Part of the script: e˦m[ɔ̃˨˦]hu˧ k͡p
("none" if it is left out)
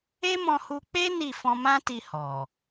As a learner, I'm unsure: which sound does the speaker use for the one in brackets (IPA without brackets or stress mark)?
ɔ̃˧